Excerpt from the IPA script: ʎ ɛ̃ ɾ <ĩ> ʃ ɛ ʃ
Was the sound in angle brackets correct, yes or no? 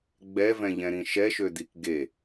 yes